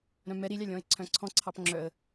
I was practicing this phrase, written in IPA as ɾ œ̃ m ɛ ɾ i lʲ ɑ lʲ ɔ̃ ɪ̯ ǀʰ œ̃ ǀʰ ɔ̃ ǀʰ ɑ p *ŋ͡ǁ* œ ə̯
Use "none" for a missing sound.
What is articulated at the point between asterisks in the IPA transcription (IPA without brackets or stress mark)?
ŋ͡ǁ